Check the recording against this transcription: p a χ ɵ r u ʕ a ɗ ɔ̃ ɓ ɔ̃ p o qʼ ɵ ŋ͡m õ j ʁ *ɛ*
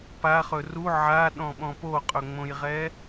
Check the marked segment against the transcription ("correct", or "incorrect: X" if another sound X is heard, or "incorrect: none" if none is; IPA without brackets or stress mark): correct